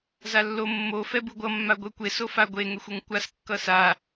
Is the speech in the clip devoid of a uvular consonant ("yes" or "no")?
yes